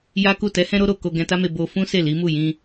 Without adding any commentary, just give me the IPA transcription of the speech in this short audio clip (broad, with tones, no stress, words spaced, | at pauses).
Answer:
ja˦ku˦˨ tɛ˨˦hɛ̃˧ɾo˧ ɾo˨ ko˧ɡɛ̃˧ta˦me˧ bo˧ fũ˦se˦˨ li˨˦mu˦˨jĩ˧